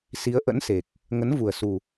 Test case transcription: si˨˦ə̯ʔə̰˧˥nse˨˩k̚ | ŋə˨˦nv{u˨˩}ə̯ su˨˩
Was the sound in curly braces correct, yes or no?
yes